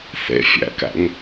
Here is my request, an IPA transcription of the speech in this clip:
θ ḛ fʲ æ̰ k æ̰ ŋ

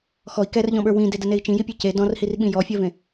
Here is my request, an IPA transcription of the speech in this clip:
x ɔ i̯ k ɛ r ʎ ɔ̃ ɓ ə˞ w ĩ d e d ə n e i̯ t͡ʃ ĩ j i pʲ e c e d ɔ̃ r h i r ɓ ĩ j ɔ fʲ ɜ v ẽ

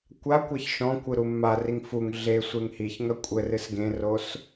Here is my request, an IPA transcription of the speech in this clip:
kʷ a kʷ ɛ ç ʃ ɔ̃ kʷ ɨ ɾ u mː a r i ŋ f u ŋ ɮ e sʷ e ŋ h i ç ŋ ɐ kʷʼ ɘ r ɨ s ɡ ẽ r o s

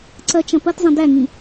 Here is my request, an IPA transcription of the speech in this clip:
ǀ ɐ t͡ʃ ɐ̃ p ɐ t zˤ ẽ d æ ŋ ĩ

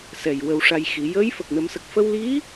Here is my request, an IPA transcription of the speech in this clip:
s ɛ˨˩ j w ə˧ w ʂ a˧ j x i˨˩˦ j əː˧˥ j f ə˨˩ k̚ n ə˨˩˦ m s ə˨˩ k̚ f ə˧ w l i˧˥

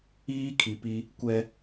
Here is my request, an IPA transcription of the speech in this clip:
iː˦ kʰ i˨ p i˦ | kʷ ɛ˦

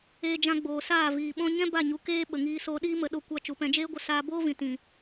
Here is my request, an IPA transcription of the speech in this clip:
eː˧ d͡ʒ ã˧ ɡ͡b oː˨ s aː˦˨ v iː˨ ɓ ɔ̃˦ ɲ ɛ̃˦ b a˦˨ ɲ u˨ k eː˦ ɓ ə˨ ŋ iː˧ s oː˧ ɗ iː˦ m ə˧ ɗ o˧ kʷ a˧ t͡ʃ u˨ p ɛ̃˧ d͡ʒ eː˦ ɡʷ ə˧ s aː˧ b oː˦ v ĩ˨ t ĩ˨

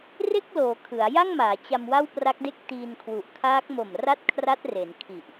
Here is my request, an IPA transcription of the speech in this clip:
r e˥˩ k̚ l oː˩˦ kʰ ɯ˩˦ a̯ j a˥˩ ŋ m aː˩˦ t͡ɕ a˧ m w a˥˩ w p r a˦˥ k̚ d e˥˩ k̚ t iː˧ n kʰ w u˨˩ ʔ kʰ aː˦˥ k̚ m o˨˩ m r a˥˩ t̚ kʰ r a˦˥ t̚ r e˩˦ n kʰ i˨˩ ʔ

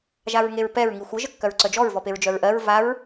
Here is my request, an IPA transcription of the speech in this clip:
ʒ a ɹ ŋ e ɹ p ɛ ɹ ŋ i xʷ ə ʒ ə kː œ ɹ ǀ œ d͡ʒ ɔ ɹ v ɔ p e ɹ d͡ʒ œ ɹ ʔ ɜ ɹ v a ɹ

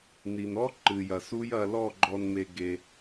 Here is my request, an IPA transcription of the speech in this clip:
n i˨ n ɔ˦ ǃ ɨ˨ j ɐ˨ s u˦ j ɐ˧ l ɔ˦˨ ɡ͡ǃ ɔ˧ n m e˧ ɡ e˧

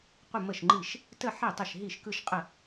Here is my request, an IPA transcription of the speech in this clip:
qʷ ə˥˧ m ə˥˩ ʃ ŋ͡ǃ i˥˩ ʃ | t ə˥˧ ħ e˥˩ tˤ ə˥˩ ʃ ɦ i˥˩ ʃ k ɯ˥˧ ʃ qʼ ə˥˩

